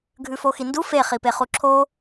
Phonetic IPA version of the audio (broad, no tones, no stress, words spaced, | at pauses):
ɡʱʉfoxindu fe χipeχuǁʰo